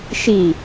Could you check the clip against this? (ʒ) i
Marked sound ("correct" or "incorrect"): incorrect